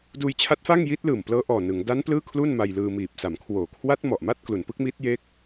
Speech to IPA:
d uː˧ j t͡ɕʰ a˦˥ t̚ f a˥˩ ŋ j i˦˥ t̚ l ɯː˨˩ m p l ɤː˦˥ ʔ ɔː˨˩ n ɯ˩˦ ŋ d a˦˥ n p l ɯː˥˩ kʰ l u˥˩ n m a˧ j l ɯː˧ m iː˨˩ p̚ s a˩˦ m kʰ w oː˨˩ kʰ w a˦˥ t̚ m ɔ˨˩ ʔ m a˥˩ t̚ k l u˩˦ n p ɯ˦˥ k̚ m i˦˥ t̚ j e˦˥ k̚

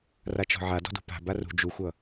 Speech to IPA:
r a t͡ʃ ɔ̤ ʕ a d ɔ̤ d ṳ p a̤ b a r ṳ d͡ʒ u xʷ ʌ

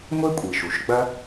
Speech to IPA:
ŋʷ e˥ kʷʼ i˩ ʃ u˩ ʃ ɡ͡b ɐ˥

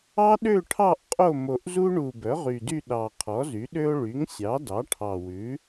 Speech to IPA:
ɑ˥ ɗ ø˥˧ ʈʰ ɑ˥˧ ʔ qʼ o˥˧ m o˨˩ ʔ z u˥ ɳ u˨˩ b œ˩˥ ʁ y˨˩ d y˥˧ ɗ ɑ˨˩ qʰ ɔ˩˥ z y˩˥ ɗ ø˥ o̯ ɭ y˩˥ ŋ sʲ ɑ˩˥ d ɑ˩˥ ʈʰ ɑ˨˩ w ʉ˩˥

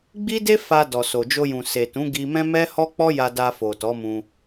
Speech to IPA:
ɡ͡b i˦ d e˦ f a˧ d ɔ˨ s o˨ d͡ʒ o˧ j ũ˨ s e˨ t ũ˨˦ ɡ i˧ m ɛ̃˦ m ɛ˦ h ɔ˦ k͡p ɔ˦ j a˧ d a˧ f o˨ t ɔ˨˦ m ũ˧

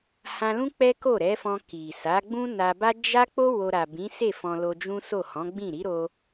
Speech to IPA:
h ã˧ l ũ˦ k͡p ɛ˦ k o˦˨ ɾ ɛ˨˦ f ɔ̃˧ k i˨ s a˨˦ ɡ͡b ũ˦ n a˧ b a˦ d͡ʒ a˦ k͡p o˦ w o˧ ɾ a˨ b ĩ˨˦ s e˦˨ f ɔ̃˧ l o˧ d͡ʒ ũ˦ s o˦˨ h ɔ̃˨˦ ɡ͡b ĩ˦˨ ɾ i˨˦ ɾ o˧

